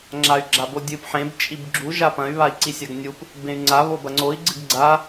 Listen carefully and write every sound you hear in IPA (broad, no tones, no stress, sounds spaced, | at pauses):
ŋ͡ǁ a y̯ ɡ͡ǁ a b o dʲ ɨ p ħ ẽ b t͡ʃʼ i b ɡ͡ǁ u ʒ a p ɐ̃ y̯ β a i̯ ǀ i sʲ a ɡ nʲ u p | b ẽ y̯ ŋ͡ǀ a β o b ɐ ŋ͡ǀ o i̯ ɡ͡ǀ ɨ ɡ ɡ͡ǀ a